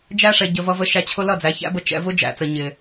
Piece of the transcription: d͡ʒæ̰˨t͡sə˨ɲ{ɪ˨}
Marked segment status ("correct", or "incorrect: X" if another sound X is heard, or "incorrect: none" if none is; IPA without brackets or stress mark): correct